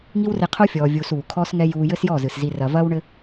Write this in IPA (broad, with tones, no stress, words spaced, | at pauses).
ŋi˦wre˧qʰo˦ fʲɔː˧vʲuː˧s uː˨kʰɔː˦sŋɛ˦ juː˧jɘ˦sjɔ˦˨zɨ˨s zi˧rɐ˧ vɐː˦wɳɘ˦